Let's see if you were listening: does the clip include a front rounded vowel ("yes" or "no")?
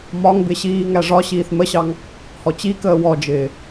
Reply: no